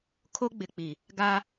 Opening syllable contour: high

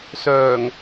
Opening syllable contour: low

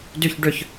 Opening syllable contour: falling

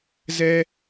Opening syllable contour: high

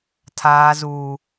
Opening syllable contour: low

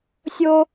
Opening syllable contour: high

